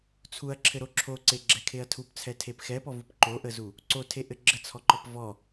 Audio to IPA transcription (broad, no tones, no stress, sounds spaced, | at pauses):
t͡sʰ u ɐ̯ ǁʰ ɘ ɾ o ǁʰ o ǀ e ɡ͡ǁ ɛ kʰ e ɐ̯ tʰ u p t͡sʰ ɛ tʰ e p x ɛ p ɔ v u p ǃ o ʔ ə z u | ǀ o tʰ e ʔ ɘ ɡ͡ǁ ə t͡sʰ ɔ ǃ ɔ p v ɔ